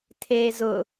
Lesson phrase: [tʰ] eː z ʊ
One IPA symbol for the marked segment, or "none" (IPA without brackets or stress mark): tʰ